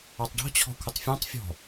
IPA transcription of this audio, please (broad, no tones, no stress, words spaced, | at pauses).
ɑtˤɖɔ̤ t͡ɕʰɔ̤kʷʰɪtˤfʲɑ̃tˤ fʲɔ̤